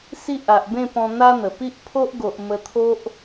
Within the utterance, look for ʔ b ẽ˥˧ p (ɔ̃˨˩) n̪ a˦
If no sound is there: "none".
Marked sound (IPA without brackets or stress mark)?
ɔ̃˧